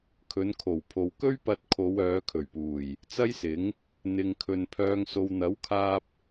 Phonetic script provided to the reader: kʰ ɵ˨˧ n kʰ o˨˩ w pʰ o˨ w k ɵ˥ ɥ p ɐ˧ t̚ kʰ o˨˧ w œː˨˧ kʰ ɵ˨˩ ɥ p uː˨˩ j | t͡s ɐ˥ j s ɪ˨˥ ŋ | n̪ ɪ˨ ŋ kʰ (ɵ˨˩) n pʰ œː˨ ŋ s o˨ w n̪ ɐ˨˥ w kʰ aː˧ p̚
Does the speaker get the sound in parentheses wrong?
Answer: yes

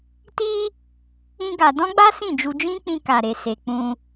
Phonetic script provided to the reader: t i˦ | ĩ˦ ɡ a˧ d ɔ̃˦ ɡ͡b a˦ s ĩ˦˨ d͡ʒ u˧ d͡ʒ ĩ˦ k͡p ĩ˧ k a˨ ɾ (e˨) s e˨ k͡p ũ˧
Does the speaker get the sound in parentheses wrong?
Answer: no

